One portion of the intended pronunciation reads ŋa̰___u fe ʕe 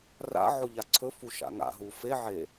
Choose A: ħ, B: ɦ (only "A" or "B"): B